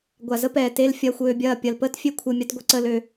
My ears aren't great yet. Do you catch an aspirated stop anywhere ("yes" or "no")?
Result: yes